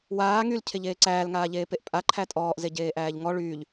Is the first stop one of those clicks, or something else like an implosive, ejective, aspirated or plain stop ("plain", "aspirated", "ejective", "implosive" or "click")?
aspirated